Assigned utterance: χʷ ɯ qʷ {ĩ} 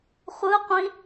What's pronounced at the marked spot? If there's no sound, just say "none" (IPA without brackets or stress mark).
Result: ĩ